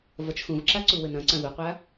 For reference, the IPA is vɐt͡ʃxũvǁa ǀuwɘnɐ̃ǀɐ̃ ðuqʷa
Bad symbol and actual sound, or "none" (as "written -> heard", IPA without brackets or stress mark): none